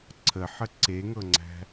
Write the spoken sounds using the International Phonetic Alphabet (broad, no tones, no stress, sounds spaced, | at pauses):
ǀʰ ə ħ ə ǀ e ŋ ɤ ŋ͡ǀ æ̤